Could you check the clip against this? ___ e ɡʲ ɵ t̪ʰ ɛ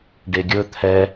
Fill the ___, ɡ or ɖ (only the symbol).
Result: ɖ